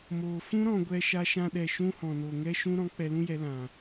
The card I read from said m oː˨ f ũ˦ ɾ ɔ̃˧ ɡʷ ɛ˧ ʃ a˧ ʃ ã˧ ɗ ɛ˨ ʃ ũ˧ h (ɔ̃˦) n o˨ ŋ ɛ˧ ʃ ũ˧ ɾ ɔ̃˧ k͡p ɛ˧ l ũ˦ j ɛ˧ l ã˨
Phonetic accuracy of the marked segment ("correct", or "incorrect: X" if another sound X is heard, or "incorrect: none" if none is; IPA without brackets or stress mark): incorrect: ɔ̃˨